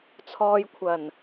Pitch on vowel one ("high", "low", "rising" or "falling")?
low